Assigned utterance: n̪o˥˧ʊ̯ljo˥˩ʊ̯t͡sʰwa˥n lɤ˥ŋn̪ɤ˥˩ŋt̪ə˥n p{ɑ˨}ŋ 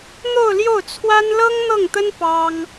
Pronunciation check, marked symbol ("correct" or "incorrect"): incorrect